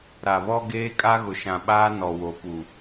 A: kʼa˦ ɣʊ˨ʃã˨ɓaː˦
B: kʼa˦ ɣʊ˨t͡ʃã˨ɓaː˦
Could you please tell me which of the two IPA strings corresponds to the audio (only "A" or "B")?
A